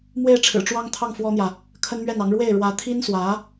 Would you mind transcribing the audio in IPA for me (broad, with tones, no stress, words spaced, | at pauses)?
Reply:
mwe˥˩ɪ̯ʈ͡ʂʰɻ̩˨˩ʈ͡ʂwɑ˥ŋt̪ʰɑ˥˩ŋ fwɔ˥n̪jä˨ | kʰə˥nmɥɛ˥˩nɑ˧˥ŋ ɻwe˥˩ɪ̯ ɻwä˧˥t̪ʰi˥nswä˧˥